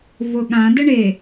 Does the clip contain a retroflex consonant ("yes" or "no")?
yes